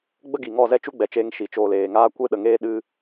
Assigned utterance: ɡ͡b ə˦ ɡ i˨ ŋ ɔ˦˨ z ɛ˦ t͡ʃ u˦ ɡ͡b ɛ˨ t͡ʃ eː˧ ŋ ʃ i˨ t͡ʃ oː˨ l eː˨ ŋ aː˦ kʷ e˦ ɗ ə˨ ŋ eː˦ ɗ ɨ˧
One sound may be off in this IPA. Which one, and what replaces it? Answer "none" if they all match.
none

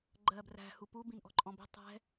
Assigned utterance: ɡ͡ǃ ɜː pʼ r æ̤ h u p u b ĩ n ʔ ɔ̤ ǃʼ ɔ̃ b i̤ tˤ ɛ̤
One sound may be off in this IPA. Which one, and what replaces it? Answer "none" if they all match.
pʼ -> b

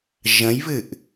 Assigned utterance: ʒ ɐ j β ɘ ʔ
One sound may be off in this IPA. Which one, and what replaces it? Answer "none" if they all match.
ɐ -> ɐ̃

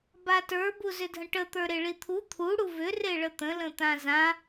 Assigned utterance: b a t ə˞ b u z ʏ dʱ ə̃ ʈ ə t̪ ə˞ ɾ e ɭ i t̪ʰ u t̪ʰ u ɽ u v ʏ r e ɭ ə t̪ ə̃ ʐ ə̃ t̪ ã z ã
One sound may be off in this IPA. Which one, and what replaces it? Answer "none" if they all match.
ʐ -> l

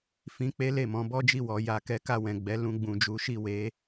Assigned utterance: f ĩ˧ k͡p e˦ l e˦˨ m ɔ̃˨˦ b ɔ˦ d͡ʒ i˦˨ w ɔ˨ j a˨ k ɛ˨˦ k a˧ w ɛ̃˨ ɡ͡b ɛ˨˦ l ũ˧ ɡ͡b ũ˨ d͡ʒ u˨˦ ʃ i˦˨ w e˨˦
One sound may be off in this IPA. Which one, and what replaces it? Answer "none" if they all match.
none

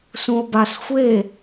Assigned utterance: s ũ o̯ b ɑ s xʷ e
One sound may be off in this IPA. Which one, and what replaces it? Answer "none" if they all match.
ɑ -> a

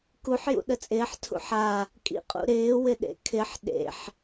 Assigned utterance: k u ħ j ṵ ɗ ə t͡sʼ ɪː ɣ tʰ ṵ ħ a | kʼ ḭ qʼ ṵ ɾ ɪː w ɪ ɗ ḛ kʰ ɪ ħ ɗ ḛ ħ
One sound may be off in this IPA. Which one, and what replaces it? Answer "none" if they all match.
ɣ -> ħ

